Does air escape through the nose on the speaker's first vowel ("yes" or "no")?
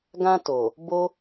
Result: yes